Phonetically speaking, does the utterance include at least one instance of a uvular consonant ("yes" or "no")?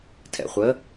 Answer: yes